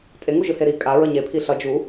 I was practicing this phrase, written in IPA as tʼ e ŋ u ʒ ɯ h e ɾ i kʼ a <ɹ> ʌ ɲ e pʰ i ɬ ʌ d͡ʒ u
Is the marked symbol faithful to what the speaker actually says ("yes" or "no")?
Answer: yes